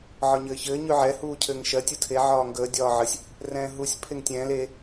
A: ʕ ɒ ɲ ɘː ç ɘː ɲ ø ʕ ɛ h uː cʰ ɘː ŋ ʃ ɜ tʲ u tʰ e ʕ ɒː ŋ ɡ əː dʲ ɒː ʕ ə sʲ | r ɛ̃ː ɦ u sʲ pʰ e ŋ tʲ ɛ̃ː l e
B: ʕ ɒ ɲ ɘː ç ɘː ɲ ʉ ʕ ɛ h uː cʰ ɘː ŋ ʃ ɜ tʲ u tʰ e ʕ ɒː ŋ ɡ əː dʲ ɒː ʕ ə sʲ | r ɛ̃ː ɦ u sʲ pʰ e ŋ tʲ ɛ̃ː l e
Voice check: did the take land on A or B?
B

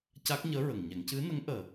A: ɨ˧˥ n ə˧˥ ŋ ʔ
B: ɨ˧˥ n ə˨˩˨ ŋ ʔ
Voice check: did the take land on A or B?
A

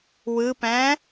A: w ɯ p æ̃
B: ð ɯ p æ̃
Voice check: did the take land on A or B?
A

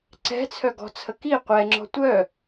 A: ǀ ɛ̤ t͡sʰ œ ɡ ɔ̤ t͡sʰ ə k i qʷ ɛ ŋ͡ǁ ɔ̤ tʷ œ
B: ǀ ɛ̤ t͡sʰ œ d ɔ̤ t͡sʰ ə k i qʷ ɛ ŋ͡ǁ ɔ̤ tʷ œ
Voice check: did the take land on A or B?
A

